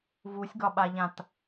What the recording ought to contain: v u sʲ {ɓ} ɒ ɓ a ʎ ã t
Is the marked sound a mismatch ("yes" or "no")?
yes